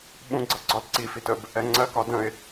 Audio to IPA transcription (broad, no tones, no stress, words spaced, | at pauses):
ɓũɡ͡ǀʌ ɡ͡ǀɒlǀifit əb | ɛŋ͡ǀɜkɒ də̃ɪ̯